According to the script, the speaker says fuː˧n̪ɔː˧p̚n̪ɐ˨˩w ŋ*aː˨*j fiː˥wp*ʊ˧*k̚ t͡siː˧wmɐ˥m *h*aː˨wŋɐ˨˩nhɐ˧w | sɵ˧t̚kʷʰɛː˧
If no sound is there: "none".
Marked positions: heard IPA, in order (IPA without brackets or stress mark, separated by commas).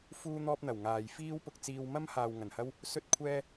aː˨, ʊ˧, h